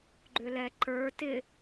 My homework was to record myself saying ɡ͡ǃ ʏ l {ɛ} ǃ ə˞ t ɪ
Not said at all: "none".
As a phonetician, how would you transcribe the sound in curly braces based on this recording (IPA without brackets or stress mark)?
ɛ